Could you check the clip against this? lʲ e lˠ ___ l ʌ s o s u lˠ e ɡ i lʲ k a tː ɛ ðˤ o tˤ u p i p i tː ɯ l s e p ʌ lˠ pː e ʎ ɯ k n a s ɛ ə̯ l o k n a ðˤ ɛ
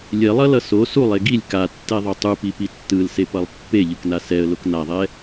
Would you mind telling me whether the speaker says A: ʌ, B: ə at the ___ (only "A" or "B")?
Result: A